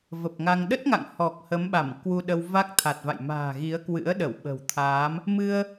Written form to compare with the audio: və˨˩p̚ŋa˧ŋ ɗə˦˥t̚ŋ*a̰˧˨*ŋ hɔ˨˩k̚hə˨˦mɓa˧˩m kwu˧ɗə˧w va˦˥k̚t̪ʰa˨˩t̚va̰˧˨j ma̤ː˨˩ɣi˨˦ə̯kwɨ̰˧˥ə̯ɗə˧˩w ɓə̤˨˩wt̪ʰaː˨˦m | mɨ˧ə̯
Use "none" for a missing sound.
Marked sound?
a̰˧˨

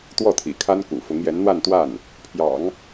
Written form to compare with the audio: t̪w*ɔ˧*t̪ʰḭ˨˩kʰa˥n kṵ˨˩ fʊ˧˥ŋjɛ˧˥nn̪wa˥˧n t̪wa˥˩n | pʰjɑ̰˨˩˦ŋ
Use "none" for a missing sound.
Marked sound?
ɔ˥˩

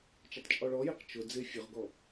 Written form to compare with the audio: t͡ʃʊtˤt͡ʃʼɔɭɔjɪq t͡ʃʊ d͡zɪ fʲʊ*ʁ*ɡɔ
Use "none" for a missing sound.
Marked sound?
ʁ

